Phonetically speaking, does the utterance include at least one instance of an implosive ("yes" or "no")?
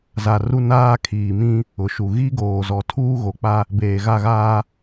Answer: no